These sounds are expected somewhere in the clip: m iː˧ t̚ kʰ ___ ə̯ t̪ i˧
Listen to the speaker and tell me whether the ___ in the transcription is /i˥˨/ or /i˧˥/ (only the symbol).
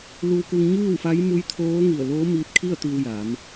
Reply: i˥˨